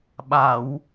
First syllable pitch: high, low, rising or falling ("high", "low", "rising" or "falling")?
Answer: low